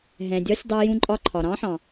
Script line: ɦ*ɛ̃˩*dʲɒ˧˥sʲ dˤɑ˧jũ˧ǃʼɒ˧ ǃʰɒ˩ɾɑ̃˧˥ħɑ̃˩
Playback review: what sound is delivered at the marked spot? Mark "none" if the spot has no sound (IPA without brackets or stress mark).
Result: ɛ̃˩